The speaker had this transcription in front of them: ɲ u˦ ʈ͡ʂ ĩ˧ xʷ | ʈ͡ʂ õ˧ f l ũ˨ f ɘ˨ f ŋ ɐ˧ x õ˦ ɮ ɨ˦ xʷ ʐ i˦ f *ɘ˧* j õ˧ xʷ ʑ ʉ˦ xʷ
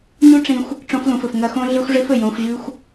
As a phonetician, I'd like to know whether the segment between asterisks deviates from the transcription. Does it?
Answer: yes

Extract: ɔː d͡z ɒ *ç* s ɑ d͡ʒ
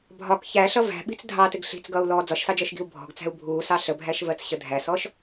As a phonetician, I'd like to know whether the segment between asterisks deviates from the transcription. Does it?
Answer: yes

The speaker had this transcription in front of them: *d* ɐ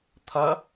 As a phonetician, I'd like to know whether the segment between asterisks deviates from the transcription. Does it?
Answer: yes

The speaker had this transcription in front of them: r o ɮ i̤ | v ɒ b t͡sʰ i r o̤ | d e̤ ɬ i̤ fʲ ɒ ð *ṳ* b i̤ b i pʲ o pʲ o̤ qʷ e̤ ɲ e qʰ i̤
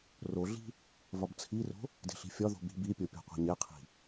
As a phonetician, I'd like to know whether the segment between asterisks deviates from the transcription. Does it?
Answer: yes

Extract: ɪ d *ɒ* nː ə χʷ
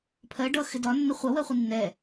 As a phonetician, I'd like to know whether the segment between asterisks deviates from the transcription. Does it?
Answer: no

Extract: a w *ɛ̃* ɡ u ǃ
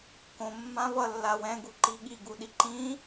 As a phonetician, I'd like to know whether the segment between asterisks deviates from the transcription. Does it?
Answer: no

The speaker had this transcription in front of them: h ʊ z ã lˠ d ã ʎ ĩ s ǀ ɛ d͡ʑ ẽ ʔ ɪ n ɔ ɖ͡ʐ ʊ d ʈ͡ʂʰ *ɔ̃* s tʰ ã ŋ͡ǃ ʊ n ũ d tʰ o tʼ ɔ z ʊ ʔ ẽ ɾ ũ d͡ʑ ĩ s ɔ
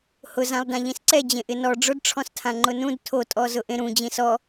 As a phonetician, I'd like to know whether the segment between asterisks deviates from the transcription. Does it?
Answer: no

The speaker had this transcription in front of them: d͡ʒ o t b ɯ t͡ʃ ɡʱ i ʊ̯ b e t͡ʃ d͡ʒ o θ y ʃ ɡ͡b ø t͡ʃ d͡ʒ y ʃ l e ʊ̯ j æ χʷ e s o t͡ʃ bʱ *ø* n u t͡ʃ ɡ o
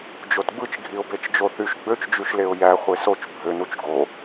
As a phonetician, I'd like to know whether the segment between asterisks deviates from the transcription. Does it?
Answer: no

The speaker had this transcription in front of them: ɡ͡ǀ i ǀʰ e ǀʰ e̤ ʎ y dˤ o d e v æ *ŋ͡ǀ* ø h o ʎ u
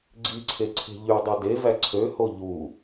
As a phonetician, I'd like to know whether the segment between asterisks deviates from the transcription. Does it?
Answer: yes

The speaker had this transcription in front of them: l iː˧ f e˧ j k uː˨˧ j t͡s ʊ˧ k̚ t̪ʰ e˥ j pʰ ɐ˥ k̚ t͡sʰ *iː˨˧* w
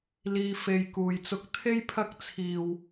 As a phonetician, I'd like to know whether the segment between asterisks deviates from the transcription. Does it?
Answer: yes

